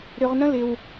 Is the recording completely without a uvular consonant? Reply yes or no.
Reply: no